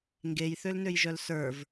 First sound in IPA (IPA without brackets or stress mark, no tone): ŋ